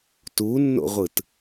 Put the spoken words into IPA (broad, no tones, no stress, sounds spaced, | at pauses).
t u nː o̰ ʁʷ ɯ t